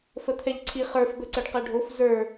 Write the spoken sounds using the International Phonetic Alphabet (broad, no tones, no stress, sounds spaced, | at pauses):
f ə t̪ʰ ɛ ʎ ǀʰ i χ ə˞ f b ə ǀ ə ɖ q ɛ ɖʱ o f z ə˞